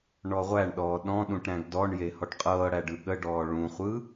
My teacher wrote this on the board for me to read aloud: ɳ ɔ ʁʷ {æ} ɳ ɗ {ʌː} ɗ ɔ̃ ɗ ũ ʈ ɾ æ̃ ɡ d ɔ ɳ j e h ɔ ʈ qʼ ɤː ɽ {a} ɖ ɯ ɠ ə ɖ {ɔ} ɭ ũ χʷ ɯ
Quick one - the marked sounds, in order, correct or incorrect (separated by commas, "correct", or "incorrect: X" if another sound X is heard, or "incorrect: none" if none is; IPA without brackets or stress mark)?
correct, incorrect: ɔː, incorrect: æ, incorrect: ɔː